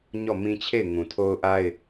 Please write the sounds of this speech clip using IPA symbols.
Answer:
ɲ ɔ˦˨ m ĩ˦ t͡ɕʰ e˦˨ ɪ̯ ŋ ũ˨ tʰ o˦ ʊ̯ ʔ a˦ ɪ̯

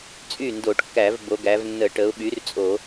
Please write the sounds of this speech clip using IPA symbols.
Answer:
t͡sʼ y˥˩ n d o˧˩˧ ʈ kː æ˧˩˧ v b o˩˧ ɡ æ˩˧ v nː ə˧˩˧ ʈ ə˩˧ ʊ̯ ɓ y˩˥ r t͡sʼ o˧˩˧

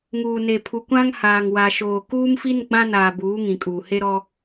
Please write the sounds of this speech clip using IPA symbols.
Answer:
ŋ uː˨ n e˨ pʰ u˨ kʷ ã˦ ŋ h aː˨ ŋ w a˨ ʃ oː˨ k uː˦ m f i˦ n ɡ͡b ã˦ n aː˨ b uː˨˦ ŋ ĩ˨ kʼ uː˨ h e˦ ɾ ɔ˦

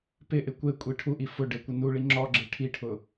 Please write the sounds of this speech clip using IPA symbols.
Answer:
p ɪ ʔ ɪ kʷ e kʷʼ i ʈʰ u ʔ i f ʊ ɖ ɪ kʷ ɪ n u ɭ i ŋ͡ǁ ɔ ɡ͡ǁ e ʈʰ i ʈʰ ʊ

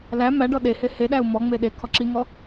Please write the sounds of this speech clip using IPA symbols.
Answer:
l æ m æ ɖ ɔ ɗ e h e h e ɗ æ u̯ m ɔ ŋ͡m e ɗ e kʰ ɔ ǁ i ŋ ɔ

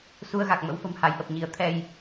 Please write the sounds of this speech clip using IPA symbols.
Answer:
s u˧ ə̯ ɣ a˨˩ k̚ m ə̰˧˥ w f ə̤˨˩ m h a˨˦ j ʔ ə˨˩ p̚ ɲ i˨˦ ə̯ t̪ʰ ɛ˧ j

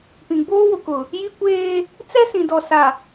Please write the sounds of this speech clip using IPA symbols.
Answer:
p ĩ˨ ɡ͡b oː˦ w ʊ˨ k ʊ˨ | j i˦ kʷ eː˦ | t͡s ɛ˦ s ĩ˨ d ɔ˨ s a˨

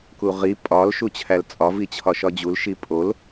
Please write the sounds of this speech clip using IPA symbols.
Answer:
k u ʁ i pʼ ɒ l ʃ u t͡ɕʰ æ l t͡sʼ ɒ v i t͡ɕʰ ɒ ʃ ɒ d͡ʑ u l ʃ i pʼ o l

